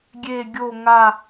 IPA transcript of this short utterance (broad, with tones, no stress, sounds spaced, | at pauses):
ɡʲ e˦˨ ɡʲ o˦˨ ŋ a˦˨